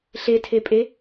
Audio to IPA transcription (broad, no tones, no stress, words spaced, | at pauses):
ɬetʰepʼe